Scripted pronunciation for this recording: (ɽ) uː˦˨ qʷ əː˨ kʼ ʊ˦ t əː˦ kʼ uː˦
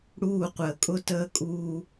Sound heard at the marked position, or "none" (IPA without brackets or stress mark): ɽ